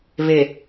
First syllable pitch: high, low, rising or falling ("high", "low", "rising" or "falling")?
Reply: low